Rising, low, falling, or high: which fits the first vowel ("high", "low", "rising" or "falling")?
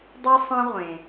high